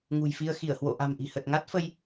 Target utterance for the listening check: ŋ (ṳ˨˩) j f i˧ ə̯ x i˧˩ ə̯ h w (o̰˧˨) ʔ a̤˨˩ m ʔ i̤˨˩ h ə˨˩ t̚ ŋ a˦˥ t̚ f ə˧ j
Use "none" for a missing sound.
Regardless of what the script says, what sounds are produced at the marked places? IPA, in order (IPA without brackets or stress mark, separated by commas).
ṳ˨˩, o̰˧˨